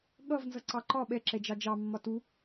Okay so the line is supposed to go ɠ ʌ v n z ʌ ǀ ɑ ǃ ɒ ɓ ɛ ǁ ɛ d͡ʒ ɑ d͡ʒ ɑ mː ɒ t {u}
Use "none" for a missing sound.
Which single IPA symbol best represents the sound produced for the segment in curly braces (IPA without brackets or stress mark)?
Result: u